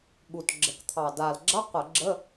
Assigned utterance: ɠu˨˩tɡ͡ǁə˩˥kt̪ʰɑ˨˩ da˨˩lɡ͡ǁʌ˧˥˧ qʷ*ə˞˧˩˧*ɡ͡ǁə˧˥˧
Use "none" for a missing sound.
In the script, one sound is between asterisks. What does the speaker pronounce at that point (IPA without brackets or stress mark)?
ə˧˩˧